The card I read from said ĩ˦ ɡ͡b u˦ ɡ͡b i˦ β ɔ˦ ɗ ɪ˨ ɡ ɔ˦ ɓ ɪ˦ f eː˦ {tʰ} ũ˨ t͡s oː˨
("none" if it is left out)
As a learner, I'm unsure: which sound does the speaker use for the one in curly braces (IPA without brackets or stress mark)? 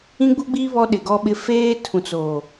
tʰ